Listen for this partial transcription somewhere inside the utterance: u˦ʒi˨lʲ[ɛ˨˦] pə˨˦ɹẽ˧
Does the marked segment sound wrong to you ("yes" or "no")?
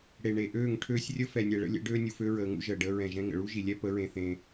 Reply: yes